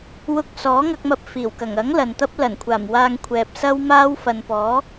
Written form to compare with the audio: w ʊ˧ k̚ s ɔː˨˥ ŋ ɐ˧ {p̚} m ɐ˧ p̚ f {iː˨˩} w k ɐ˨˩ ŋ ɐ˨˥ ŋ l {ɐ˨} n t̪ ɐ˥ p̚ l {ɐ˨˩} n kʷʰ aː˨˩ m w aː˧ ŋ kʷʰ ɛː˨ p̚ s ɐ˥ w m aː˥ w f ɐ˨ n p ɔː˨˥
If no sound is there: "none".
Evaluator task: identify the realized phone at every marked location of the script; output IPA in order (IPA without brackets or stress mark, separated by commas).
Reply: k̚, iː˨˩, ɐ˨, ɐ˨˩